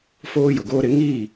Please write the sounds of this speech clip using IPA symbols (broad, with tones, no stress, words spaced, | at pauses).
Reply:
foː˦jʊ˨ɡoː˦ɾɪ˨˦ ŋiː˦˨